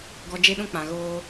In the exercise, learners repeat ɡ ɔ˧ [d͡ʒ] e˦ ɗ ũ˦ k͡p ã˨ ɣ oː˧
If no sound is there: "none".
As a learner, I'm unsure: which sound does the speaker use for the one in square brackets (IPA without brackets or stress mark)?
d͡ʒ